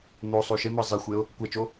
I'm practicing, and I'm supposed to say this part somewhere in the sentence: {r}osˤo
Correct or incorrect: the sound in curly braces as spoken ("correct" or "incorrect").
incorrect